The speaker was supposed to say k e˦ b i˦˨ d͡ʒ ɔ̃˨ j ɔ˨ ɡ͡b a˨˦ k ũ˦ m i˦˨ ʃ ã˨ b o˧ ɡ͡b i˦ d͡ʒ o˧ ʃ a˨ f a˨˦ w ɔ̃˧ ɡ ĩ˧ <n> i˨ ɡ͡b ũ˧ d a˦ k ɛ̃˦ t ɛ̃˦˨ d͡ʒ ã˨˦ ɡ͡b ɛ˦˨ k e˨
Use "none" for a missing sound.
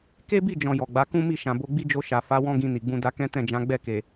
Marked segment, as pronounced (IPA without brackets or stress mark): n